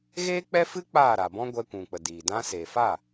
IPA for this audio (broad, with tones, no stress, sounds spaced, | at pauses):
ɣ eː˦ k͡p ɛ˦ f ɨ˦ k͡p aː˦˨ ɾ a˨ b ɔ̃˦ ɡʷ ɛ˧ kʷ ũ˨ k͡p ə˨ d i˨ d ã˧ s eː˨ f a˦˨